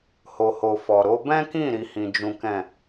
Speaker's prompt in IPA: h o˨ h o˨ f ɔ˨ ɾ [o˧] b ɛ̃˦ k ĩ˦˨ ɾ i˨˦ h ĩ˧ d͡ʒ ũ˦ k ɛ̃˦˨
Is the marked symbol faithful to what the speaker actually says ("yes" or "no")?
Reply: no